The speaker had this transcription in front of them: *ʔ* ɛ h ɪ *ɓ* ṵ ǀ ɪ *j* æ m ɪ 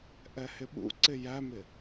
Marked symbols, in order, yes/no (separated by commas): yes, yes, yes